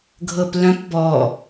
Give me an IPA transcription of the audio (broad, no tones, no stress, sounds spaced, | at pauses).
ɡʱ ɤ p l œ̃ p b ɔ